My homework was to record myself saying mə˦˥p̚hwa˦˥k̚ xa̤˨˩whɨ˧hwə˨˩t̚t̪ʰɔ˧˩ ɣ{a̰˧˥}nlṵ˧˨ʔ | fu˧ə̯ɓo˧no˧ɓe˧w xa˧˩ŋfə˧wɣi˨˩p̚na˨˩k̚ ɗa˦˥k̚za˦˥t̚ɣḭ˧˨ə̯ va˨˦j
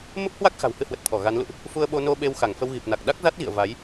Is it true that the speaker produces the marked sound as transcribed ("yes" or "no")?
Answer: no